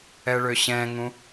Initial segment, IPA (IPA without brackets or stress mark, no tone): ɛ